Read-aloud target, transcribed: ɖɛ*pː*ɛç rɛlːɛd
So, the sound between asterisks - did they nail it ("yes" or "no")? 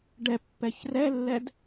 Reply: yes